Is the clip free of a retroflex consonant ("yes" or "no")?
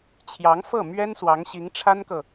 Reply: no